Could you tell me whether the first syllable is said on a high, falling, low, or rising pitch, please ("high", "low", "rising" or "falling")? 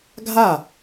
falling